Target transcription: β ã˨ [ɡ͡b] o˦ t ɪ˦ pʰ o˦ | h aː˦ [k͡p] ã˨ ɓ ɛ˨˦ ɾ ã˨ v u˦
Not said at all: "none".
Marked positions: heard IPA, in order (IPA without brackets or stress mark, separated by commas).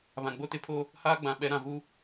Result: ɡ͡b, ɡ͡b